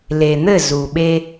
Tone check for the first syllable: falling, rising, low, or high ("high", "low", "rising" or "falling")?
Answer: low